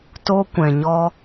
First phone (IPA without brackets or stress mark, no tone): t